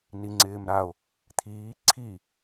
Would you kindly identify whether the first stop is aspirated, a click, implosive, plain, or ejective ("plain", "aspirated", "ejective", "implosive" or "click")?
click